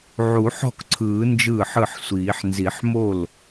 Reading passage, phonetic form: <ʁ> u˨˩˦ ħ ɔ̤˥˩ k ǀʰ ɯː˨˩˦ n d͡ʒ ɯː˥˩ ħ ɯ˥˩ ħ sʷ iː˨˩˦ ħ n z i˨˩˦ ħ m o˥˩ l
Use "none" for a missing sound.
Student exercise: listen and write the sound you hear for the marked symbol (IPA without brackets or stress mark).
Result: ʕ